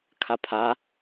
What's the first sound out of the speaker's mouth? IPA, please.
kʰ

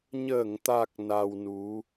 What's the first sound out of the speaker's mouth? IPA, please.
ɲ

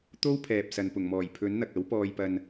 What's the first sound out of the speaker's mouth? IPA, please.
t̪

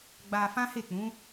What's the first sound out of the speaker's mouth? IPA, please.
ɡ͡b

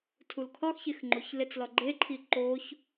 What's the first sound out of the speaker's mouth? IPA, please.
tʰ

